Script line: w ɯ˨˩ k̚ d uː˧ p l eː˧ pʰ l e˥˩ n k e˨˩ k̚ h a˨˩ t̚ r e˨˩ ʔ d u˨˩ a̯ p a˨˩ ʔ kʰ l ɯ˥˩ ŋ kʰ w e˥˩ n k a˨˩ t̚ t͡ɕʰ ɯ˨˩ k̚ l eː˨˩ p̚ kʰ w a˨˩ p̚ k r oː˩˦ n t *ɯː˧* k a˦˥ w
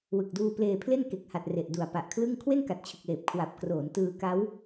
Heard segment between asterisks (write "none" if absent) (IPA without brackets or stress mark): ɯː˧